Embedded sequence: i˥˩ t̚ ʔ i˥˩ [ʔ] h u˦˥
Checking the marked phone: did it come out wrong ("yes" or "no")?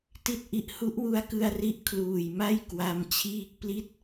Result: no